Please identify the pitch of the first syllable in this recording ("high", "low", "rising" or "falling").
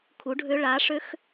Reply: rising